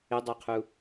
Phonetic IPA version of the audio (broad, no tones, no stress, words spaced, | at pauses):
ɪdˤaqʰu